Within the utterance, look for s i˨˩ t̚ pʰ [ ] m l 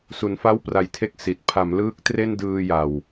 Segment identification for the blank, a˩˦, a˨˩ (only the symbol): a˩˦